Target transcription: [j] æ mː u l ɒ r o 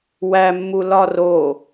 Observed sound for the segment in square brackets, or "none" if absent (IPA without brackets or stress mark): w